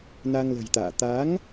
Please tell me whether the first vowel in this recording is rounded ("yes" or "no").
no